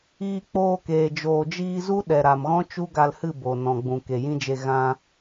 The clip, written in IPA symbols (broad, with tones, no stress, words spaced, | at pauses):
iː˧k͡poː˧keː˨ d͡ʒoː˨d͡ʒiː˧zu˦ ɗɛ˨ɾa˨mɣɔ̃˦t͡ʃu˦ ɡa˧lhɨ˦˨ bo˨ nɔ̃˨ɡ͡bũ˨ ke˨jĩ˦d͡ʒe˧ ɣã˧